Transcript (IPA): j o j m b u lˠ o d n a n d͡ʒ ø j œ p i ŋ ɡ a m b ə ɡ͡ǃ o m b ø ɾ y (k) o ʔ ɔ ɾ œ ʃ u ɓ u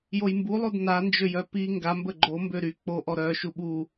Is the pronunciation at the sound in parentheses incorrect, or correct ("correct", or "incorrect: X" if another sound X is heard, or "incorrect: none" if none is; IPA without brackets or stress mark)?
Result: incorrect: k͡p